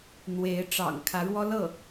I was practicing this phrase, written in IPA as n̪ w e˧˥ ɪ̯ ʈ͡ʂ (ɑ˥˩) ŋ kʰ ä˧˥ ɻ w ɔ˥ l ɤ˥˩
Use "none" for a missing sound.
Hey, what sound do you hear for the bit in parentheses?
ɑ̰˨˩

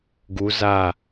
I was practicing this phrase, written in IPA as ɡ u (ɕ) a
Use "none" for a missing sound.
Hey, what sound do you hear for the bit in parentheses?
z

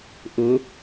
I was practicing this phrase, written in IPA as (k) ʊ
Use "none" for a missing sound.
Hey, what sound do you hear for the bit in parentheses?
ʔ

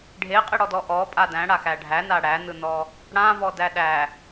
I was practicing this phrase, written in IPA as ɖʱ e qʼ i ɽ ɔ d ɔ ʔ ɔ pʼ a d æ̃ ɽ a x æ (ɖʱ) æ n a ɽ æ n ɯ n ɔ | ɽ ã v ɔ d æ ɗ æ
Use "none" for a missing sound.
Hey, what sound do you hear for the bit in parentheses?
ɖʱ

